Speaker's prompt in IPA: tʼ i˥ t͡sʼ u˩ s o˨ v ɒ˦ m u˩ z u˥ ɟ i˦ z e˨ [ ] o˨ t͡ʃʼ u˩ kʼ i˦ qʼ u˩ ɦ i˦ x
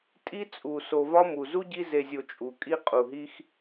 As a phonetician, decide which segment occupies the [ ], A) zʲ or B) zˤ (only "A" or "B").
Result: A